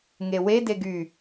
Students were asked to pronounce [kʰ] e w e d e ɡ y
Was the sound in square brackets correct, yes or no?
no